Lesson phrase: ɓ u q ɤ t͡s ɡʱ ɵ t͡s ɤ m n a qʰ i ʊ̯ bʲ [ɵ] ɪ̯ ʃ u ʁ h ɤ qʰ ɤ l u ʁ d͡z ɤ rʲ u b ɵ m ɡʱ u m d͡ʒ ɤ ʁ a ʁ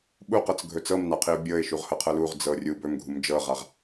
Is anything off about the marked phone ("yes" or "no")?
yes